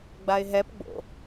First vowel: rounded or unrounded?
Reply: unrounded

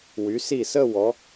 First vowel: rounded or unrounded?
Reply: rounded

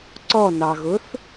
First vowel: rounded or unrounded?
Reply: rounded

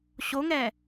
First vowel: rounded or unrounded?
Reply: rounded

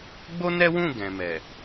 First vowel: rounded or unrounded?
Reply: rounded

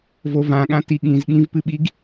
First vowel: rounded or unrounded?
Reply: rounded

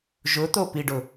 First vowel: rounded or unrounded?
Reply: rounded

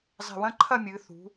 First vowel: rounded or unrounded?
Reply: unrounded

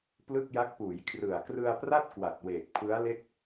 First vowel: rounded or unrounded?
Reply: unrounded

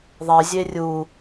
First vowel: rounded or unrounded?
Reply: unrounded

